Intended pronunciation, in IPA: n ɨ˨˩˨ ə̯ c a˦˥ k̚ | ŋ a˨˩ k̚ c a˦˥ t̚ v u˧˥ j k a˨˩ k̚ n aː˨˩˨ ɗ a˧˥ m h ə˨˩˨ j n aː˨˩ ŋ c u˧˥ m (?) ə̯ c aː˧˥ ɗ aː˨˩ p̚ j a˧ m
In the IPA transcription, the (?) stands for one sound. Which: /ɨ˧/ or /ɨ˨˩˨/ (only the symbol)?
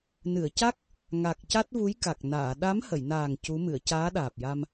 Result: ɨ˨˩˨